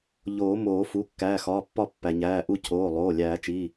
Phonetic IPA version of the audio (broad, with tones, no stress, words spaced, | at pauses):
ʎoː˨˩˦moː˨˩˦fu˩˧˩ kːæː˩˧˩xɒː˩˧˩pːɒ˦˨pːæ˩ ɲæː˩˧˩ʔu˦˨ cʰoː˩˧˩lˠoː˩˧˩ lʲæː˨˩˦t͡ʃiː˩˧˩